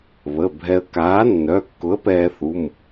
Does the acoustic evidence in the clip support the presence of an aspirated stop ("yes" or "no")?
no